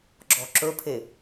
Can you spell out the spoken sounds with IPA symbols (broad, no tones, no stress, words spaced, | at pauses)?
ɡ͡ǁɔǁɵpʰe